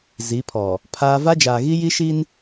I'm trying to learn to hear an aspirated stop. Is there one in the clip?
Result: yes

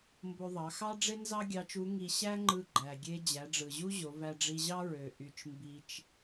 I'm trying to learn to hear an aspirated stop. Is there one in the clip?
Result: no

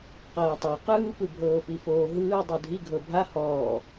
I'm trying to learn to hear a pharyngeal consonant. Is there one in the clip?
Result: no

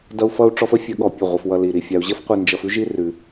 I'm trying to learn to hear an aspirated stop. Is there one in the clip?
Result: no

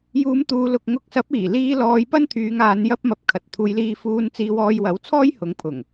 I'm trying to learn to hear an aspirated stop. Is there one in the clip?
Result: yes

